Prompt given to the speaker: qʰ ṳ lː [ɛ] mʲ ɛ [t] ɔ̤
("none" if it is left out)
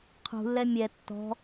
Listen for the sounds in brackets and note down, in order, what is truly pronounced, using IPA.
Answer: ɛ, tː

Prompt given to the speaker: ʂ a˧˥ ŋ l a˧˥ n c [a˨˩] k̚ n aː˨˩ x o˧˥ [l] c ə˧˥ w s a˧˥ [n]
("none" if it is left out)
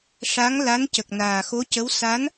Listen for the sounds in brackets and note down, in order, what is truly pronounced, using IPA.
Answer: ə˨˩, none, n

